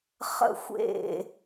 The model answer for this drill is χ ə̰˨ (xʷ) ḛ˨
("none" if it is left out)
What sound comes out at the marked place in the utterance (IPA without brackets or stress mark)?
xʷ